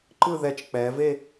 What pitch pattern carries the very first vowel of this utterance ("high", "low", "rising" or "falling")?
falling